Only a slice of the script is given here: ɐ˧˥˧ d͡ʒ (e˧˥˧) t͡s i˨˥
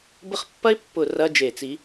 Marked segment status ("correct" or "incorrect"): incorrect